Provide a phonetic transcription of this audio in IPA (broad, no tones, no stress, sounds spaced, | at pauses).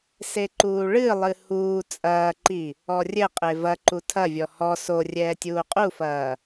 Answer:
s e ǃ uː ɭ ɨ lˠ ɨ h uː t͡sʼ ɐː ǃ i | ɔ rʲ ɘ qʼ e v ɐ ǃ u tʰ ɐ vʲ ɔ h ɔ s o rʲ ɛː tʲ uː qʼ u f ɐː